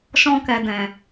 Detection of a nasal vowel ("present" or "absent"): present